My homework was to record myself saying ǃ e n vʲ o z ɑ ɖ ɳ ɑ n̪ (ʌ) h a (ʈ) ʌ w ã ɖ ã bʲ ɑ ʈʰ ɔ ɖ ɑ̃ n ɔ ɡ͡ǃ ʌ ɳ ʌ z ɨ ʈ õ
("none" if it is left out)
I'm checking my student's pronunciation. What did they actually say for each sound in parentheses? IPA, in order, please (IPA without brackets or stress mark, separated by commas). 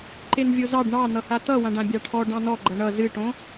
ʌ, t̪